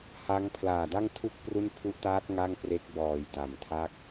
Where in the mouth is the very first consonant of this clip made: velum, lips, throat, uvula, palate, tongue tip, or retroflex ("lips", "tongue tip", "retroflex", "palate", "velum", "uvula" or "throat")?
throat